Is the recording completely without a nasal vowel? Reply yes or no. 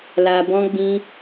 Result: no